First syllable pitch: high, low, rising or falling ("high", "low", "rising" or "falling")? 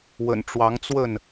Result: low